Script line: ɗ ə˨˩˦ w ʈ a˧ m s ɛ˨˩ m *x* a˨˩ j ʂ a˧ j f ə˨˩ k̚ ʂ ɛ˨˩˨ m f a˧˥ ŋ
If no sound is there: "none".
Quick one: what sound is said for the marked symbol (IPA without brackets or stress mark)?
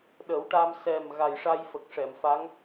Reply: ɣ